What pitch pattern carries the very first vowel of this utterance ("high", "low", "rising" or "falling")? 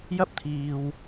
high